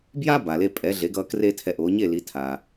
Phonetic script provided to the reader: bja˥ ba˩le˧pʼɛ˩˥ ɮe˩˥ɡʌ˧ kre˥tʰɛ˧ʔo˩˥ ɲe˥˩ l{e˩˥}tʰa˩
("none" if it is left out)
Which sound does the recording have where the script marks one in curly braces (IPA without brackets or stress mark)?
i˩˥